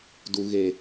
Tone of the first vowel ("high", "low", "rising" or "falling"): low